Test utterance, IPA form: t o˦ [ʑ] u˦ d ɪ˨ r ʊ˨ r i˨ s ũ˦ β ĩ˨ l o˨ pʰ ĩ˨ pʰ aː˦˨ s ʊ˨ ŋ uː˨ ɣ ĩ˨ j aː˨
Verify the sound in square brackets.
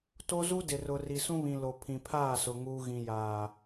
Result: incorrect: z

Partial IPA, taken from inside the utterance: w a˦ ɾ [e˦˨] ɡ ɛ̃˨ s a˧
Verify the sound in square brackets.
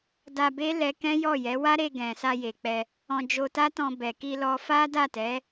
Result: incorrect: e˧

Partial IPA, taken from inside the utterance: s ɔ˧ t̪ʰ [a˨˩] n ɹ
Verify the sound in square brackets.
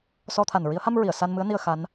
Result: correct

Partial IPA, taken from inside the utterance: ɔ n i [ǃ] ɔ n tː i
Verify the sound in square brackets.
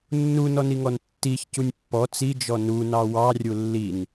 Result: incorrect: ŋ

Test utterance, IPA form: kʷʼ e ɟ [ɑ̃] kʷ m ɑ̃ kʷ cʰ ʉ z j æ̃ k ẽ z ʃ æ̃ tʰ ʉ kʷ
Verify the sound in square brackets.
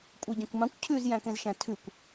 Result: correct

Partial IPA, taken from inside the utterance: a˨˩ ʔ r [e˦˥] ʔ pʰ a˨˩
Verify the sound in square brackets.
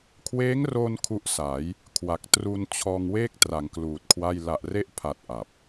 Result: correct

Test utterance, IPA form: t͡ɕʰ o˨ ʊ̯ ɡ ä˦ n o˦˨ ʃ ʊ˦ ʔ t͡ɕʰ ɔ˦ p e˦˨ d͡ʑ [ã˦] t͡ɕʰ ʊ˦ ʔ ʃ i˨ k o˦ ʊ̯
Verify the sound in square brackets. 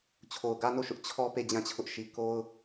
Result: incorrect: ã˦˨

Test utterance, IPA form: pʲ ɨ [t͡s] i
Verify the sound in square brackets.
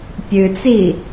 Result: correct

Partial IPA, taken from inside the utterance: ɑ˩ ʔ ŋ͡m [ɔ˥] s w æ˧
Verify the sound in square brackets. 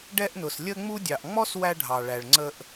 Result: correct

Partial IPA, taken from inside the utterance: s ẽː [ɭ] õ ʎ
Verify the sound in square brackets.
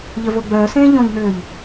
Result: incorrect: ʎ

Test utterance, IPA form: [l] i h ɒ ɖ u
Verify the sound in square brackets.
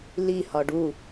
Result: correct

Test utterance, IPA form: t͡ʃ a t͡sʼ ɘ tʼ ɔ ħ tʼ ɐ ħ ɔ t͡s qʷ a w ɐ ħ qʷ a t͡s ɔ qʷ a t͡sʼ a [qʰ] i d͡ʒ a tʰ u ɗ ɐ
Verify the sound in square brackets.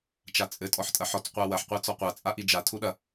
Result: incorrect: ʔ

